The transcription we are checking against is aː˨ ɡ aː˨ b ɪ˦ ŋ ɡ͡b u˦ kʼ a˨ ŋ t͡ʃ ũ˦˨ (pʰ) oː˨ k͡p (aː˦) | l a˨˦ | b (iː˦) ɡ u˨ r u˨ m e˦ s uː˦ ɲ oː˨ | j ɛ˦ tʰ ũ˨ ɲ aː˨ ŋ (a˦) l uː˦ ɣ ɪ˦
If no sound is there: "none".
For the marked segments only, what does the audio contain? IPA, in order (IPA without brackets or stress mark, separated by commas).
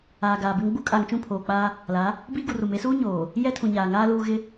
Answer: pʰ, aː˦, iː˦, aː˦